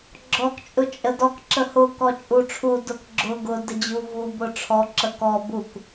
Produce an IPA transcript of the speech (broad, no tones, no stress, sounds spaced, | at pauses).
ɡ͡ǁ ɔ k t͡ʃʼ ʊ t͡ʃʼ ə d ɔ k ǁ ə h ʊ k ɔ t͡ʃʼ u ʈ͡ʂʰ u d ʊ k ɡ͡ǁ ʊ ɡ ʊ d ə d͡ʑ u v u b ʊ ʈ͡ʂʰ ɔ ǁ ə k ɔ b u k